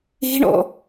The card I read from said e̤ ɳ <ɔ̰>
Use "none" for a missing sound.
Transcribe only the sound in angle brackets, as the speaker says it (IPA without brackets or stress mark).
ɔ̰